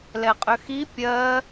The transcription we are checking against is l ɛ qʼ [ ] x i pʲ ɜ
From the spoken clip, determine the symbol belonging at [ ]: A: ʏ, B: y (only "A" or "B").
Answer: A